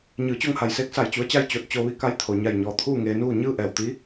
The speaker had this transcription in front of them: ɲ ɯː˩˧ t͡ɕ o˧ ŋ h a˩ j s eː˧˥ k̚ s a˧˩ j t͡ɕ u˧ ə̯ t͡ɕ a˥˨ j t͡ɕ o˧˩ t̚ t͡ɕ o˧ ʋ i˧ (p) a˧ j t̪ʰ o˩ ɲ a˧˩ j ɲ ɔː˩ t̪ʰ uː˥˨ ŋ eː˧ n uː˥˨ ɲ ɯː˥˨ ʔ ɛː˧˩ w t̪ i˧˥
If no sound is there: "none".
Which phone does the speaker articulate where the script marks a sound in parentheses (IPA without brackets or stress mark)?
k